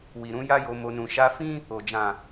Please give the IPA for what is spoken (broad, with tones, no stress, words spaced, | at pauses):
wi˨ ɾũ˧ ja˦jo˧mo˧ nũ˨ʃa˧ fĩ˦ | o˨d͡ʒã˨